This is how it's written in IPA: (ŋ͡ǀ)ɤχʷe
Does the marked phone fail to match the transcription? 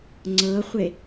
no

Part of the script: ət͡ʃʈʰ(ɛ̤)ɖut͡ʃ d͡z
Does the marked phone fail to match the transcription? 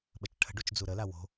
yes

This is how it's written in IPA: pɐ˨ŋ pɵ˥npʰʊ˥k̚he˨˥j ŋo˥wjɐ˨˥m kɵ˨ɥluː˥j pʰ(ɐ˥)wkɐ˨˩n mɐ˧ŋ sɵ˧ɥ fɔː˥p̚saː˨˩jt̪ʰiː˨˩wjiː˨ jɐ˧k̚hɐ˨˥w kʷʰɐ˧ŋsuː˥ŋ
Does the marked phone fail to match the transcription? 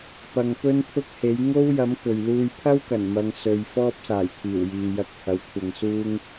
no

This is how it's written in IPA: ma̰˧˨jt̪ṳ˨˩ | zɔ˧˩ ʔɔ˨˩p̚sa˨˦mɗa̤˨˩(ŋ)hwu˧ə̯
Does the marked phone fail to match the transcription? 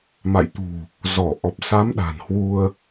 yes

